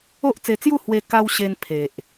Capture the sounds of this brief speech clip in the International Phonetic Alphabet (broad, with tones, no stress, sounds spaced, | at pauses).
o˦ ʔ t͡s e˧ t͡s j u˥˧ h w e˧ k a˧ w ɕ e˧ n pʰ e˨ ʔ